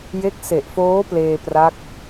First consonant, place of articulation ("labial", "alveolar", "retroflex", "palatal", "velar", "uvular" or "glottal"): palatal